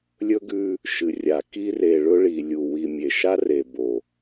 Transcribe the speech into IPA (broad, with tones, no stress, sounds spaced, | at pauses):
lʲ ɵ˦ ɡ ʉ˦ | ʃ ɨ˨ rʲ a˨ k i˦ r e˨ ɭ ɵ˦ ɭ i˨ lʲ u˨ w i˨ mʲ e˨ ʃ a˦ r e˨ b o˨